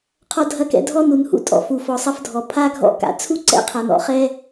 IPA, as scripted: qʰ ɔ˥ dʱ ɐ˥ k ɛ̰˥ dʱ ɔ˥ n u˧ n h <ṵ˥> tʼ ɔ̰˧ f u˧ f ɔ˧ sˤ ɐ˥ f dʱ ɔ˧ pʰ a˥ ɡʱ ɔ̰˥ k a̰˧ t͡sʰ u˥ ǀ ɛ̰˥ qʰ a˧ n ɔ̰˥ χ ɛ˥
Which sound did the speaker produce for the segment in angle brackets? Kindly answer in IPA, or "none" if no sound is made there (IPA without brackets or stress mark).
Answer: ṵ˥